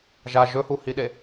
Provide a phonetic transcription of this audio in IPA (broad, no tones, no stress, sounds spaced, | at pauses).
ʒ a ʒ ɵ h u h i ɗ e